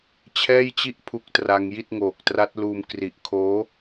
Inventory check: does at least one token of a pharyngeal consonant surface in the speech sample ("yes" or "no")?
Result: no